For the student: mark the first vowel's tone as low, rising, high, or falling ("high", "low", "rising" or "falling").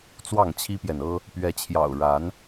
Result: falling